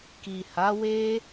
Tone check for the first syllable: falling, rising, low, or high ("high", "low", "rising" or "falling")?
low